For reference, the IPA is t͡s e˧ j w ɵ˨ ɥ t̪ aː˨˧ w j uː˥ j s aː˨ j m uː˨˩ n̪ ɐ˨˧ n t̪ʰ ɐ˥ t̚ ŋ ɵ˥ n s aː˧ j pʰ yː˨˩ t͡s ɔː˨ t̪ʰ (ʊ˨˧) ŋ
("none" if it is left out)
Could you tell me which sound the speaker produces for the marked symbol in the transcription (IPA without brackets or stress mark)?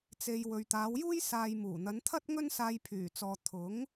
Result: ʊ˨˥